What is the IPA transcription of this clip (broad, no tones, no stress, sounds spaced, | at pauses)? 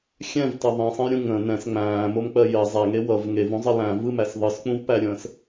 xʲ ɛ̃ v t ʌ ðˤ ĩ sˤ ə̃ j ɾʲ ũ ŋ ə̃ n ɛ̃ s ŋ͡m æ̃ː m o m k͡p ɜ j ɜ zˤ æ ŋ e w ʌ v ŋ e v ũ zˤ ʌ l æ̃ v ɯ m æ s ðˤ ɯ s k͡p ũ v p æ ɾʲ ə̃ː s